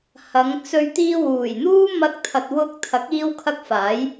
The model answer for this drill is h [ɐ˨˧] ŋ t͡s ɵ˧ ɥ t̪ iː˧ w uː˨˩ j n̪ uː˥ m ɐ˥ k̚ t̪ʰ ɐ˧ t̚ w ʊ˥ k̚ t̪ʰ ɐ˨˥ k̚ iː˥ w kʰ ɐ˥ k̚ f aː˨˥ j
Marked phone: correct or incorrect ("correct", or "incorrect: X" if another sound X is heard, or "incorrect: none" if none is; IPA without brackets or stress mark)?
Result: correct